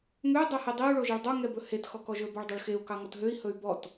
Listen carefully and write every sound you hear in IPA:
ŋ ø dˤ e h i dˤ i u̯ ɭ o ʒ e ɭ dˤ o ŋ ɛ b ɵ h e t x ɔ k ɔ ʒ ɵ b ɔ ɭ dˤ o ɭ x e u̯ k ɑ ŋ ɔ t ɦ ø i̯ h ɵ y̯ b ɔ t

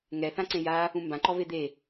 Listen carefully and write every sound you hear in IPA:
ŋ ɛ θ ã ǀ ẽ j a | ũ m b ã ǃ ɔ v e d̪ e

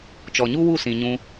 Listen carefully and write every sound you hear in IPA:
t͡ʃ ɔ˨ ɲ u˦ w u˦˨ s ĩ˨ ɲ ũ˧

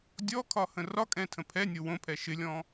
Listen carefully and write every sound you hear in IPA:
dʲ ɔ kʰ ɒ h ə̃ r ɒ kʼ ɛ̃ tʰ ə̃ pʰ ɛ nʲ o w õ pʰ ɛ ʃ ɪ lʲ ɔ̃

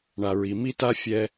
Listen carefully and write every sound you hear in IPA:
ɳ a˨ ɹ i˨ m i˦ t a˦ fʲ ɛ˦

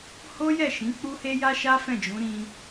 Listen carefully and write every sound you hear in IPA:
h o˦ j ɛ˦˨ ʃ ĩ˨˦ k͡p u˦ h e˦ j a˦ ʃ a˦ f ɛ̃˦˨ d͡ʒ ũ˨˦ ɾ ĩ˧

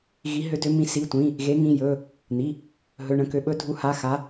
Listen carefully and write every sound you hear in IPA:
ɣ i˨˦ ɦ ø˨˦ d ø˨˦ m ĩ˨˦ s i˩˧˩ tʷ ĩ˩˧˩ | ɣ e˨˦ ŋ ĩ˩˧˩ j ɵ˩˧˩ | n̪ i˩˧˩ | ɦ ɵ˩˧˩ ɳ ə̃˩˧˩ k ø˨˦ ɓ ɵ˨˦ dʱ u˨˦ h a˩˧˩ x a˨˦

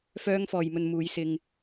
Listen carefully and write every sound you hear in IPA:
f œː˧ ŋ f ɔː˨ j m ɵ˨ n m uː˨˧ j s ɪ˧ ŋ

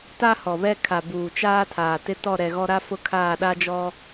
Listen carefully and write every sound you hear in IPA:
t a˦ h ɔ˨ β ɛ˦ kʰ a˨ b uː˨ t͡ʃ aː˦ tʰ aː˨ t ɪ˦ t ɔ˦˨ ɾ ɛ˨ ɣ ɔ˦ ɾ a˦ f ʊ˦ kʰ aː˦˨ ɗ a˦ d͡ʒ ɔ˦

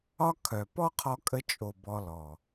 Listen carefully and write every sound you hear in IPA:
ɒ˦ kʰ œ˨ p ɔ˦ qʰ ɔ˧ kʼ ə˧ t͡ʃʼ o˨ b ɔ˧ l ɔ˨

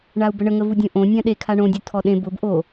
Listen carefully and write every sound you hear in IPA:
ɳ a u̯ b ə ɳ ə ŋ ə v u dʲ õ ʔ õ nʲ ã ɗ e kʰ a ɳ õ dʲ u tʰ ɔ ɗ ẽ b ʊ b ʔ o

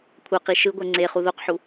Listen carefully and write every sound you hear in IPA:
kʷʰ ʌ q i ʃ ɯ ɡʷ ɛ ŋ͡ǀ e χ u ð o q ħ u

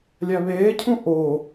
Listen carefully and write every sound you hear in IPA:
lʲ æ β eː cʰ ũ ʔ o

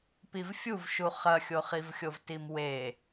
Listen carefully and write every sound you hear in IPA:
p i v fʲ u v ʃ u χ ɐ xʲ o χ i v xʲ o v t i m w e

